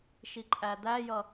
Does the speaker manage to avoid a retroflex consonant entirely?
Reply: yes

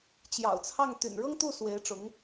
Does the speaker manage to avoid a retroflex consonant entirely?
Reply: no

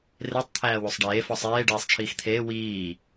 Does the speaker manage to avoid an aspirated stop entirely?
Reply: no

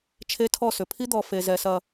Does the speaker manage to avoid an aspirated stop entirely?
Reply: no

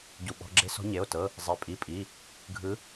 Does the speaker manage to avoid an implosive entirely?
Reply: no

